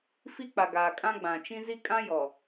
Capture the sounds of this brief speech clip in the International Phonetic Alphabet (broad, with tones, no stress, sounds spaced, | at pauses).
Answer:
f i˦ k͡p a˨ ɡ aː˨ kʼ ã˦ ɡ͡b ã˨ t͡ʃ ĩ˦ z i˦ kʼ ã˦ j ɔ˨